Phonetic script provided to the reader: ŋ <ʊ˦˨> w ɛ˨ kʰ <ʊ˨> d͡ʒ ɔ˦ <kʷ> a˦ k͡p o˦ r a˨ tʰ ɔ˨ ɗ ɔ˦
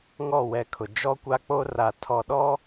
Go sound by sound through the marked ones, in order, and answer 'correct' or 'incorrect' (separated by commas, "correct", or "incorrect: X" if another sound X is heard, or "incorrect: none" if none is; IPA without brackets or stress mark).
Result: incorrect: ɔ˦˨, correct, correct